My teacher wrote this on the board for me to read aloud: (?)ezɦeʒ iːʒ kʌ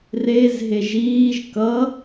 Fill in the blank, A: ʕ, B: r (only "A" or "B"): B